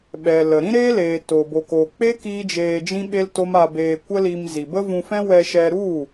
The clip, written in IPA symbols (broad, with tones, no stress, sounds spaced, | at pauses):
ɓ ɛ˨ l ə˨ ɾ ĩ˦ ɾ eː˦ l eː˨ t o˨ b o˨ k o˨ k͡p e˦ k iː˦ d͡ʒ eː˧ d͡ʒ ĩ˦ ɓ e˦ l t o˦ m a˧ b eː˧ kʷ ə˦ l i˧ m z i˨ b ə˦ v ũ˧ f ɛ̃˦ w ɛ˧ ʃ ɛ˧ ɾ u˦˨